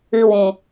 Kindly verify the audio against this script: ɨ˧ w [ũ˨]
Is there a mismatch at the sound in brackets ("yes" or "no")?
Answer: no